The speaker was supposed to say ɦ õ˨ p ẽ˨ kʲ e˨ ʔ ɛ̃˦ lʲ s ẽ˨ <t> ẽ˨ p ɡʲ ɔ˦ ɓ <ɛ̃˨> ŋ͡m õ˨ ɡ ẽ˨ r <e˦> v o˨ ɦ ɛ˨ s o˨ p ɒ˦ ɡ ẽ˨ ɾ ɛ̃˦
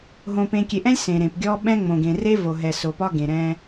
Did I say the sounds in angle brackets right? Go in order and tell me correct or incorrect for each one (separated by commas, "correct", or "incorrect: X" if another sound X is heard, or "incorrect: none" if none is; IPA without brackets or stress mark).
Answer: incorrect: ɾ, incorrect: ɛ̃˦, correct